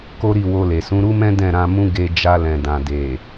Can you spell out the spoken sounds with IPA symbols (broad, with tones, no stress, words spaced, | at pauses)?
ko˦ɾi˦˨wo˧le˨ sũ˨˦ɾu˦mɛ̃˦ dɛ̃˦˨ɾã˧mũ˦ ɡe˧ d͡ʒa˧lɛ̃˨dã˨ de˨